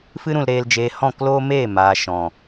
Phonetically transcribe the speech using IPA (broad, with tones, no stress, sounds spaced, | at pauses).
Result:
f ɨ˦ ɾ ũ˧ l ɾ eː˧ l d͡ʒ eː˧ h ɔ̃˦˨ k l oː˦ m eː˦˨ m aː˨ ʃ ɔ̃˨